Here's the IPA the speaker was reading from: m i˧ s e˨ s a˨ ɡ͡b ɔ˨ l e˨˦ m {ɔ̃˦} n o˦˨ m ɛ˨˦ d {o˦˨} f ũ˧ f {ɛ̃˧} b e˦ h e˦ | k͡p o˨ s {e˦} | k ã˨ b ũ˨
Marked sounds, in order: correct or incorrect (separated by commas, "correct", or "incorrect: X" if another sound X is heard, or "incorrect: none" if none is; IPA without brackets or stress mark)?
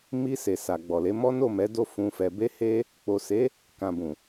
incorrect: ɔ˦, correct, incorrect: ɛ˧, incorrect: e˨˦